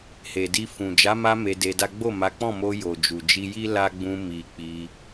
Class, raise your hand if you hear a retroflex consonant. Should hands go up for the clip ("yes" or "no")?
no